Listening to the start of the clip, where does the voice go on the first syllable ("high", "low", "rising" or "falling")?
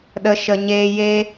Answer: low